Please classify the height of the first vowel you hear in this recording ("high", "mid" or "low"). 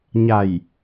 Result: low